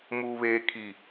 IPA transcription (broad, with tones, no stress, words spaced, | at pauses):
muː˨βeː˨ kʰi˨